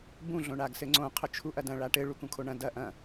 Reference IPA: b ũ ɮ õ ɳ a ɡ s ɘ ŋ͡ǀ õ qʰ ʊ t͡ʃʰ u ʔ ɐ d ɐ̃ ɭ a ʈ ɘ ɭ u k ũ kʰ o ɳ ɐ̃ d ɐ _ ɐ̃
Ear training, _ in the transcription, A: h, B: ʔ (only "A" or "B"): B